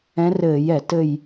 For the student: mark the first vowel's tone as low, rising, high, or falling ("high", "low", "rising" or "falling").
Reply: rising